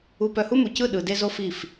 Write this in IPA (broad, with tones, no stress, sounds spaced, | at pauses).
u˨ p œ˨ h u˦ m u˨ c ɯ˦˨ ɗ ɯ˨ d e˦ z o˦ f i˦˨ f